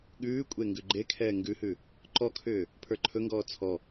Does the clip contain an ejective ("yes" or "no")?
yes